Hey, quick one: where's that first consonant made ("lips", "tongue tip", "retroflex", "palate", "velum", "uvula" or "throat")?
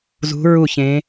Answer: tongue tip